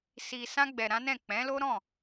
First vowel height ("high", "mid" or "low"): high